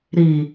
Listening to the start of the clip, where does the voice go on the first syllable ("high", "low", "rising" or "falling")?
low